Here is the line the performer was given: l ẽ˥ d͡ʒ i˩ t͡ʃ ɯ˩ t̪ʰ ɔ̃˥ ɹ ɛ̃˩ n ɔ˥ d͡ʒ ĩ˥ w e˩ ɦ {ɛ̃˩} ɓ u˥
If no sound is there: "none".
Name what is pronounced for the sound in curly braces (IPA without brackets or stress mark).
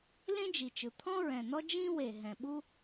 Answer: ɛ̃˩